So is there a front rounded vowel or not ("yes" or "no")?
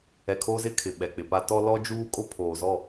no